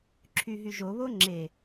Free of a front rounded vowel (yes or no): no